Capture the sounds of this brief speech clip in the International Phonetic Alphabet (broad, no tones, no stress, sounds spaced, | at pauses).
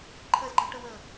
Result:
ǃʰ ɜ z ɡ͡ǃ ɤ ʈ ə w ə